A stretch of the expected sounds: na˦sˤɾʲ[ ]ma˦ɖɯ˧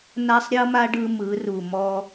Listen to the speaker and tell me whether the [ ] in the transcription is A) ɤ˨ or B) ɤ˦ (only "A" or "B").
B